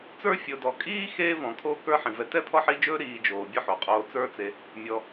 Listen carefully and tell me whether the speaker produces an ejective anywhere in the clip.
yes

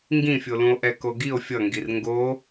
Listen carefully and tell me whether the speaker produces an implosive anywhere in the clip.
no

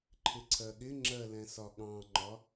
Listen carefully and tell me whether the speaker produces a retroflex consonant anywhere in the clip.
no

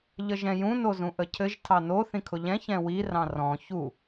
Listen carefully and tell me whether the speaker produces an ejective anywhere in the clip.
no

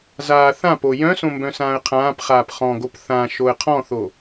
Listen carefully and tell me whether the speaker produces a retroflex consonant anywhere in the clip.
no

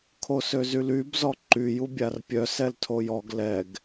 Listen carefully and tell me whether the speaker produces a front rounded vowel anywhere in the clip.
yes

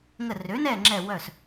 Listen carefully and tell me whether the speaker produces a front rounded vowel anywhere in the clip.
yes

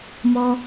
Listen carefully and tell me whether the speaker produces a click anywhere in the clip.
no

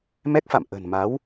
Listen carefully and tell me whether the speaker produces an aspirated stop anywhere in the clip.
no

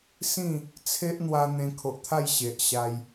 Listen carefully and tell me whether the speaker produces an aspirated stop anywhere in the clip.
yes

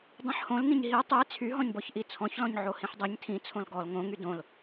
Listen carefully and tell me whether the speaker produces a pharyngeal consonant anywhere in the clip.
yes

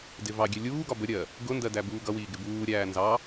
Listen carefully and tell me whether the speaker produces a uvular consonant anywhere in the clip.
no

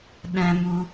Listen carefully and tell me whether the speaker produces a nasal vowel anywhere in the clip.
yes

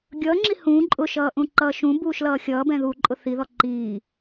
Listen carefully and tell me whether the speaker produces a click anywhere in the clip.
yes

